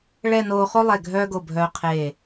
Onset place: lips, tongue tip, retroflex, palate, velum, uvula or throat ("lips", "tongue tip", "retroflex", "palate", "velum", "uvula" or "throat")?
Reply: retroflex